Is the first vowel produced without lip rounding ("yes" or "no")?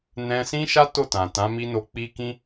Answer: yes